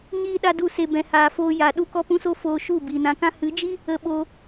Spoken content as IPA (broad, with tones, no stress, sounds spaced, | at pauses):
ɲ iː˦ ɗ a˦ d u˦˨ s e˧ b ɛ̃˧ h aː˧ f oː˦ j a˨˦ ɗ u˦ k ɔ˦ p ũ˦ s o˦ f oː˧ ʃ u˦˨ b iː˨ n ã˧ k ã˦ h ɨ˨˦ d͡ʒ i˦ | ə˧ ɓ oː˧